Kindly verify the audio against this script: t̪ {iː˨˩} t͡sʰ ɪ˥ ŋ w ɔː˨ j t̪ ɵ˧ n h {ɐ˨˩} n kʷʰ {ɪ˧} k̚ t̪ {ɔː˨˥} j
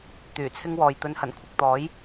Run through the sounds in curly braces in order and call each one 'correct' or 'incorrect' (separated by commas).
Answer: incorrect, correct, correct, correct